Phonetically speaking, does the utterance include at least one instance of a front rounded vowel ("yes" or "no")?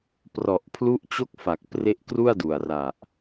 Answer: no